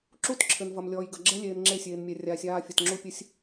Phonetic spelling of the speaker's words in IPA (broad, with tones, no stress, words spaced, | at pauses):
ǁu˦t ǁʰɘ˨nvɐ˨m lʲɔː˨jɡɐ˨ ɡ͡ǁɛ˦lʲeː˨n ŋ͡ǁe˦˨sʲeː˨nmʲɛ˨ rʲaː˨sʲaː˦˨fʲɐ˨t ŋ͡ǁu˦pʲɘ˦sʲ